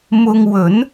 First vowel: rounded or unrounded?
rounded